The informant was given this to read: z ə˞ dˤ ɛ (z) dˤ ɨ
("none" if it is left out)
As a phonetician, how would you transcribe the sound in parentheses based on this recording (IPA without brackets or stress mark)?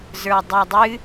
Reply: none